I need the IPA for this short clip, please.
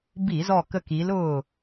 bi˧˩˧zɔ˧˩kə˧˩ki˩˧l ʊː˧˩

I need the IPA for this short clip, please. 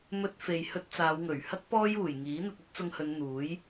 mɵ˧t̚fe˨jhɵ˧t̚ t͡saː˨˧wŋɵ˨˩ɥ hɐ˥k̚ pɔː˥juː˨˩j ŋiː˨˥n̪ɐ˧t̚ ɵ˥t̚t͡sʊ˧ŋhɵ˨˧n n̪uː˨˥j

